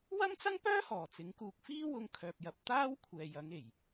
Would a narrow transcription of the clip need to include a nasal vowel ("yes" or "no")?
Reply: no